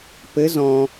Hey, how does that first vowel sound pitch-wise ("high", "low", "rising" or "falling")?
rising